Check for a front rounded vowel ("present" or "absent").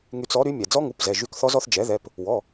present